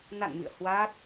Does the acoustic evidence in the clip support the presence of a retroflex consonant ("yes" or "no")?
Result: no